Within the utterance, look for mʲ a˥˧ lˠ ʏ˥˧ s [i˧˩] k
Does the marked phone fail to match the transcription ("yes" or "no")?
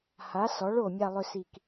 no